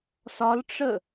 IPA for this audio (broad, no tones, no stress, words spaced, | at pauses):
sɒlʈ͡ʂə